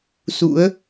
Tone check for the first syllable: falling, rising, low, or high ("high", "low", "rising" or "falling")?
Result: rising